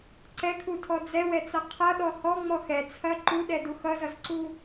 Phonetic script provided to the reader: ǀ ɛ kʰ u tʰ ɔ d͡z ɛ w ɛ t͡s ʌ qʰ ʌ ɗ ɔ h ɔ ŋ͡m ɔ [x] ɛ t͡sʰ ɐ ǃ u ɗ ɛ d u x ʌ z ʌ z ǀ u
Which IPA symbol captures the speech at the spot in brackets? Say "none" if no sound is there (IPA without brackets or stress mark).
x